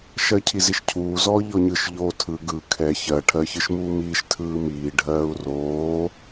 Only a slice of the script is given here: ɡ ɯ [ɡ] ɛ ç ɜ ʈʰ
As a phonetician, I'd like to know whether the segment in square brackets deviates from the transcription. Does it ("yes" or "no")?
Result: yes